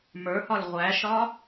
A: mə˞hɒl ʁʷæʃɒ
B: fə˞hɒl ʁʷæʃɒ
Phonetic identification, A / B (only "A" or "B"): A